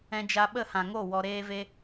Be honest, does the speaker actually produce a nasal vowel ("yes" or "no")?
yes